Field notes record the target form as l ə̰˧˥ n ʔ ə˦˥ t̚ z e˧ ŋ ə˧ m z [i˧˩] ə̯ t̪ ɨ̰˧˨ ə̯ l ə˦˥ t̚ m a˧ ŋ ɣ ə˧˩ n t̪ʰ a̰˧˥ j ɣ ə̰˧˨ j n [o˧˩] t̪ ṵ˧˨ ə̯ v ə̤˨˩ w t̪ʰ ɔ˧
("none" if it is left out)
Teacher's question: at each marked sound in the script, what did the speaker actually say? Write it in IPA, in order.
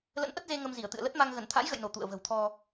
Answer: i˧˩, o˧˩

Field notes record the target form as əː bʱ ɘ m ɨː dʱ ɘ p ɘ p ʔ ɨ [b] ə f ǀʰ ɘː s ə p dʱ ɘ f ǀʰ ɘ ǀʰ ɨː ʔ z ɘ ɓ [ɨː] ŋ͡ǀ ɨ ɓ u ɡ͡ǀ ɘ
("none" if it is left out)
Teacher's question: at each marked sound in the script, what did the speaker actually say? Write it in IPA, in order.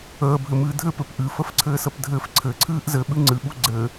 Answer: f, ɨ

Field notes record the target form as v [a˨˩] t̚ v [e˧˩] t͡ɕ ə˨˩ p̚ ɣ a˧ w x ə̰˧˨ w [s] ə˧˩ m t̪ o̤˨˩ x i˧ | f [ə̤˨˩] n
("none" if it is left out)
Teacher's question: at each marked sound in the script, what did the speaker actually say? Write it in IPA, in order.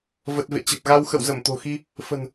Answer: ə˨˩, ḛ˧˨, z, ə̤˨˩

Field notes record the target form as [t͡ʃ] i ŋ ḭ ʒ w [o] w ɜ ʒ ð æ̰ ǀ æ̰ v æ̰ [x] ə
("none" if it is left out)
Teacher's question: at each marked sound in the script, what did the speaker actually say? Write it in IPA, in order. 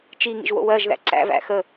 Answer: t͡ʃ, o̰, x

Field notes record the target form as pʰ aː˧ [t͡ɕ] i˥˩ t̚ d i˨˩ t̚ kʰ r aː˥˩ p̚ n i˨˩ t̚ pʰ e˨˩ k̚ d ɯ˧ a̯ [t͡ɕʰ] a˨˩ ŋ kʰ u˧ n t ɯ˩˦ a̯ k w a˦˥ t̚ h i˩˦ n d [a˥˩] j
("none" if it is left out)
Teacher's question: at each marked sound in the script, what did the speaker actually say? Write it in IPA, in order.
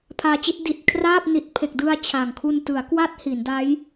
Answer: t͡ɕ, t͡ɕʰ, a˦˥

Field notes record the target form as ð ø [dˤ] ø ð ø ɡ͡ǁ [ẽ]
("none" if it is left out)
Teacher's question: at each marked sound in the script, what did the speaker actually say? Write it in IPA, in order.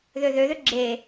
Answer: ð, e

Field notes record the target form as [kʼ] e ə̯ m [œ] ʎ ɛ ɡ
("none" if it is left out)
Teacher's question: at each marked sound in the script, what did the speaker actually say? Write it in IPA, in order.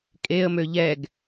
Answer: kʼ, ø

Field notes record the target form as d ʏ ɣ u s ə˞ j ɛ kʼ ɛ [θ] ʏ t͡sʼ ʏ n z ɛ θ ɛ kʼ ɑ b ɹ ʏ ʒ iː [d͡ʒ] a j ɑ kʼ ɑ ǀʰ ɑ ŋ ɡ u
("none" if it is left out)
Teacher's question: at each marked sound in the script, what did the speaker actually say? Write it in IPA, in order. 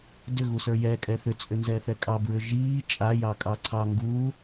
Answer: θ, t͡ʃʼ

